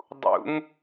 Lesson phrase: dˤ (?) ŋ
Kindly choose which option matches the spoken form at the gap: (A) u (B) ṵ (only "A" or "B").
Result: B